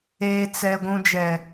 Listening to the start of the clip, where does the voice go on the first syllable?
low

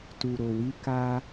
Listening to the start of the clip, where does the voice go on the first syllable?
low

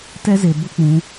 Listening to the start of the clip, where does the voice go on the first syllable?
high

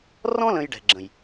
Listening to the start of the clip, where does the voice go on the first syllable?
high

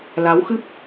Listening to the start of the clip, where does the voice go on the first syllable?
rising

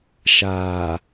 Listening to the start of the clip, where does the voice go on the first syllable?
low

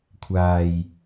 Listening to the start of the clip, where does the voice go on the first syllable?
low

